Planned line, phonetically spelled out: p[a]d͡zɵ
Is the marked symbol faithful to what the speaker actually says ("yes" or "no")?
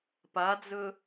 yes